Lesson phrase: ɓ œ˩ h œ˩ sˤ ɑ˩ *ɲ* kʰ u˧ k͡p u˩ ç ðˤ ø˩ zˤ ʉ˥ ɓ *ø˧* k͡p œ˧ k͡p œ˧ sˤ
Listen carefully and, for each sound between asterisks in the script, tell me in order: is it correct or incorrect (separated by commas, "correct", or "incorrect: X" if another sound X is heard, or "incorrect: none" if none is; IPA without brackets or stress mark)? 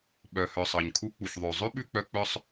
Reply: correct, incorrect: ʉ˧